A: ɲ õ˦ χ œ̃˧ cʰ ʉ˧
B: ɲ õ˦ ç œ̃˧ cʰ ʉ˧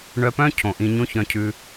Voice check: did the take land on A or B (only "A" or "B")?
B